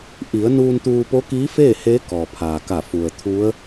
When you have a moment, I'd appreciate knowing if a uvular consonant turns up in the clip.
no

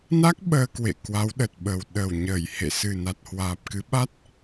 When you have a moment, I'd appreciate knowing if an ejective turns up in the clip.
no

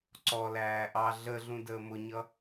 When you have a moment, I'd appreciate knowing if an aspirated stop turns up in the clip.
no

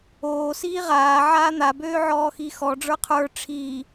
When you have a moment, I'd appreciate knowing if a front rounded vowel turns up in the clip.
yes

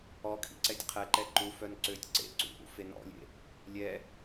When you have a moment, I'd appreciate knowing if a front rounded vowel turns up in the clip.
yes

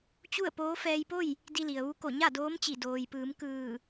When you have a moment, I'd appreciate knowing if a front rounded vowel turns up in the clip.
no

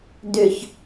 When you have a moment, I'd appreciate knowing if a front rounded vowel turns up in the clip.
yes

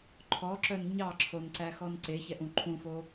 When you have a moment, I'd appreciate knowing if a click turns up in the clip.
yes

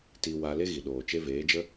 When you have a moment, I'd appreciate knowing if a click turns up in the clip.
no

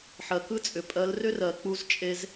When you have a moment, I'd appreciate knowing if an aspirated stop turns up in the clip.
no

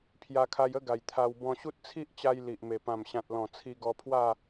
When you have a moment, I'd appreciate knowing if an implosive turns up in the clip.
no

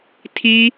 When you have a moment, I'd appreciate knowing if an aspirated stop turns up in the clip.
yes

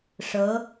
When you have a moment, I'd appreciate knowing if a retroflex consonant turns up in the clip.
yes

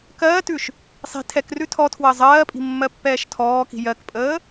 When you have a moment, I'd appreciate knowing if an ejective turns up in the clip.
yes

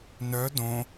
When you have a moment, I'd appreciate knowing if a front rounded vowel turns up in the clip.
yes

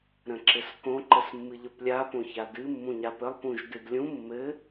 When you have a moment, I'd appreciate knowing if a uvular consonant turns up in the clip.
no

